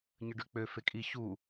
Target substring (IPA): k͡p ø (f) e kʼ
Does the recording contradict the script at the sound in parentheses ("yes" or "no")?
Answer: no